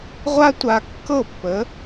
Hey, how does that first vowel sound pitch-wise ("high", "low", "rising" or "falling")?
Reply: high